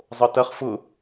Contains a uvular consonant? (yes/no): yes